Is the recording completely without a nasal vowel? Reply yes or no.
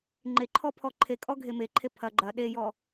yes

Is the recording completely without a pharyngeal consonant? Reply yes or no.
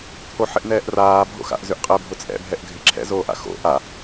no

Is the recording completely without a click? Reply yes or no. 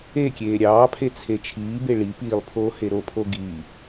yes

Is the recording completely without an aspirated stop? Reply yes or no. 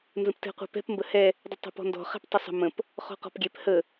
yes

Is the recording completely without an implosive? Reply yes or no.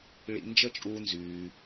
yes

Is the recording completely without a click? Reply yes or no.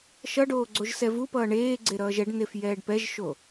no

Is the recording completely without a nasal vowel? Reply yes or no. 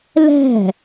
yes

